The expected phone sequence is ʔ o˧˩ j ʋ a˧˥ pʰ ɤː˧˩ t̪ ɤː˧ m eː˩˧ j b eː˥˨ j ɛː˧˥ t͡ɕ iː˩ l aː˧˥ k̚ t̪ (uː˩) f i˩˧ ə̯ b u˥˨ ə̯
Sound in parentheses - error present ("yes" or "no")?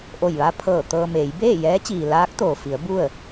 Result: yes